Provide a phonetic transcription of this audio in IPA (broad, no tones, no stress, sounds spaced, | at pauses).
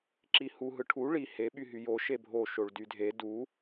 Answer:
ǁ i h u ɦ ɯ ʈʰ u ɭ i h e ɓ y ɦ y j o ʃ e bʱ o ʃ o ɭ d y dʱ e d u